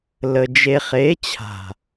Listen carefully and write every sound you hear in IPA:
l ə˨ d͡ʒ e˨ χ e˨˦ t͡ɕʰ a̤˨

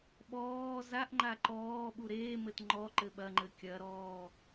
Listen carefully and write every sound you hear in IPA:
ɓ ɔː z a ʔ ŋ͡ǃ a ǃ ɔː ɓ u ɾ eː m ɘ t ŋ͡ǃ ɔ ǃ ɘ ɓ ɐ ŋ͡ǃ ɘ kʲ ɐ ɾ ɔː

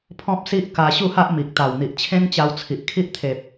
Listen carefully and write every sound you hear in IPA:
pʰ ɔ̃˦ p̚ s i˦ ʔ k a˧ ɕ u˥˧ h a˦ ʔ m i˨ k̚ t̪ a˨˩ w n̪ i˨ ʔ t͡ɕʰ ẽ˦ ŋ t͡ɕ a˧ w t͡sʰ i˨ ʔ kʰ i˦ ʔ t̪ʰ e˨ p̚

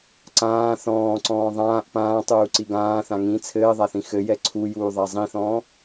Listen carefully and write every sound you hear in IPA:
ǀ ãː θ ɔ̃ː ǀ ɔ̃ː ðˤ ãː ʔ p ãː tˤ uː ǀ i ɡ ãː θ ã ŋ ĩ t͡sʰ ɘː ðˤ a θ ĩ x ɘ j ɛ ǀʰ u j uː ðˤ a zˤ ĩ θ ɔ̃ː

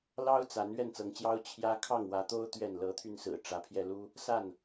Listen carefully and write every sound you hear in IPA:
l ɑ˦ ʊ̯ t͡s a˨˦ n ɥ ɛ˥˨ n t͡s ɤ˨˦ ŋ t͡ɕ j ɑ˦ ʊ̯ t͡ɕʰ j ä˦ kʰ ɑ˥˨ ŋ w ä˨˦ t̪ o˦ ʊ̯ t̪ ɥ ɛ˥˨ n l ɤ˨˦ t̪ʰ y˧ n s ɹ̩˨˩ ʈ͡ʂ ä˨˦ pʰ j ɛ˧ l u˦ | s a˥˨ n

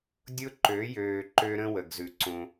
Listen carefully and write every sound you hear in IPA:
dʲ ʊ˦ ǃ ø˨˦ j øː˨ ǃ ø˦ ɾ ə̃˦ w ə˨ ɡ z ʉ˨ ǀ õ˦

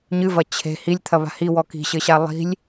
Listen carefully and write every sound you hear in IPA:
ɲ ɨ v ɐ t͡ɕʰ e̤ h i lʲ t̪ʰ ɐ β a̤ h i w ɔ k i̤ ɕ ɘ ɕ a lˠ i̤ lʲ

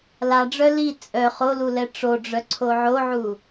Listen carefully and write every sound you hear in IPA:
l a ɖ͡ʐ œ l i t͡sʼ œ χ o l u l ɛ ʈ͡ʂ o ɖ͡ʐ œ ǀʰ o ʕ o ʕ u

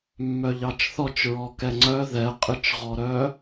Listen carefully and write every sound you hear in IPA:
mː œ ʎ ɑ t͡ʃ θ ɔ t͡ʃ ɹ ɔ k ɛ ŋ͡ǀ œ ð ɛ qʼ ɨ t͡ʃ ʁ ɔ ɾ œː

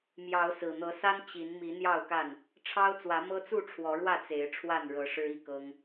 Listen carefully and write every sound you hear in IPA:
m j ɑ˨˦ ʊ̯ s ɹ̩˨˩ n̪ ɤ˨˦ s a˦ n t͡ɕ i˨˦ n m i˨˦ n̪ j ɑ˥˨ ʊ̯ k a˥˨ n | ʈ͡ʂʰ ɑ˦ ʊ̯ t͡s w ä˨˦ m ɤ˦ t͡s u˥˨ ʈ͡ʂʰ w ɔ˨˦ ɻ w ä˥˨ t͡s e˨˦ ɪ̯ ʈ͡ʂʰ w a˥˨ n ɻ ɤ˨˦ ʂ ɻ̩˦ i˥˨ k ɤ˦ ŋ

